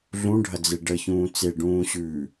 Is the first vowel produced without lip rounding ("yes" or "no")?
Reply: no